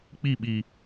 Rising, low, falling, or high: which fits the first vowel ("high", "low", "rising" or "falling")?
falling